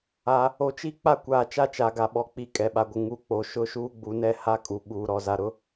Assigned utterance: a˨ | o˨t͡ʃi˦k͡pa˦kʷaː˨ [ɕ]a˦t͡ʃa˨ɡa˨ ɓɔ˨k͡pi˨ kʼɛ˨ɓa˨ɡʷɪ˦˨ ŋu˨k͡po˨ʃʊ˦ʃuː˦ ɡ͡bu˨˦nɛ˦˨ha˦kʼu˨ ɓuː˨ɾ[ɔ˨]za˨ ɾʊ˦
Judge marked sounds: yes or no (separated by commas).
no, yes